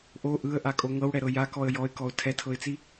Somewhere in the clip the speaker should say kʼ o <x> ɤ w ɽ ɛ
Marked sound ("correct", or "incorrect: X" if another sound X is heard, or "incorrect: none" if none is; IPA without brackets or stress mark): incorrect: ŋ